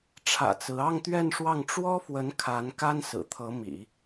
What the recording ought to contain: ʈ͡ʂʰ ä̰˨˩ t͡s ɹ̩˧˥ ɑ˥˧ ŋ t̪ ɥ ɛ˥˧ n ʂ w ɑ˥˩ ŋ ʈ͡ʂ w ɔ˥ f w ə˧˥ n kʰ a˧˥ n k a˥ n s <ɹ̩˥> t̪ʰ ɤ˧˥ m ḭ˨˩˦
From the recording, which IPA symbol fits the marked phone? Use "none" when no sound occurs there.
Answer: ɹ̩˨˩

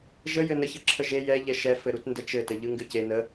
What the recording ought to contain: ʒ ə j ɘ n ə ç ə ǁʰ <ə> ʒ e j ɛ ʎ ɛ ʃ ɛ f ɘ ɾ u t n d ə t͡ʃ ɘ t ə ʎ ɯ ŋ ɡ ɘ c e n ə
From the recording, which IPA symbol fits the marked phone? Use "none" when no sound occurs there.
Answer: ə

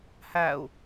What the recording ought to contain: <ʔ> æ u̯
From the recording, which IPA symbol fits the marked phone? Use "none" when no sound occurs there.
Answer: h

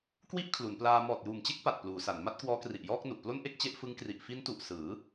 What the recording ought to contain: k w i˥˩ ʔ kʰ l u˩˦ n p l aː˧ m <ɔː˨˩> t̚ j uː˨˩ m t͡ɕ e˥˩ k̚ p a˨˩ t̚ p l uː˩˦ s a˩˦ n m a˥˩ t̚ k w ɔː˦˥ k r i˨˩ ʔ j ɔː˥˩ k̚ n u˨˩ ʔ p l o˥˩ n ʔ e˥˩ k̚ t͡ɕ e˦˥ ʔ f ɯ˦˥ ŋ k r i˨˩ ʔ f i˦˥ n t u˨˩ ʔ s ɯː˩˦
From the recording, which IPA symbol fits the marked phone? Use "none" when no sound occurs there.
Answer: ɔː˨˩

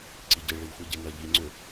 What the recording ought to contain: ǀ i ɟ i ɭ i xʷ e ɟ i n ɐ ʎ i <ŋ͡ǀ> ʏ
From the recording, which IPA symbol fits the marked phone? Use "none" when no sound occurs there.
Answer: ŋ͡ǀ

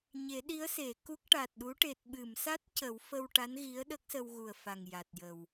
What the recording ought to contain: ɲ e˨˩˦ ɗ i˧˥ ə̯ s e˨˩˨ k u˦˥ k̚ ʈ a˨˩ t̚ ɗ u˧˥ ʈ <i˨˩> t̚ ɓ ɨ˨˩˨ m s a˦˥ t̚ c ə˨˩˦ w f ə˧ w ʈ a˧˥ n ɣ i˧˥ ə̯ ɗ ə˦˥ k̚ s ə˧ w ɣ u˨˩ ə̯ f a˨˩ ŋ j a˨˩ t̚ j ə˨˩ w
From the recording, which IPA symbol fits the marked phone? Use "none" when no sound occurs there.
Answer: e˨˩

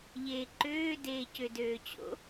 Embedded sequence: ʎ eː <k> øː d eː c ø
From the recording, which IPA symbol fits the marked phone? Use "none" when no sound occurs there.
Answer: ǃ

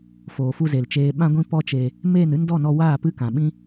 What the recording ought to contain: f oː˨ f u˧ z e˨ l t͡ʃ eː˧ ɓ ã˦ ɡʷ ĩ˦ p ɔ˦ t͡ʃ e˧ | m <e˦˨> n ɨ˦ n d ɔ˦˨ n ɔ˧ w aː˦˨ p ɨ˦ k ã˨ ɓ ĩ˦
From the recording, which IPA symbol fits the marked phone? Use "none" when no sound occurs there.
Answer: eː˦˨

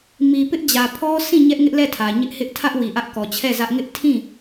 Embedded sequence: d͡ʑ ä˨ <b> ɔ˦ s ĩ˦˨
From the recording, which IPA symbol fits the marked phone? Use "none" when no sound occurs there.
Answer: pʰ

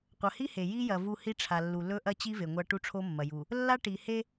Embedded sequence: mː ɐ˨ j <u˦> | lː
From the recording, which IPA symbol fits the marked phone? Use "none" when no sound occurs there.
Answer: u˨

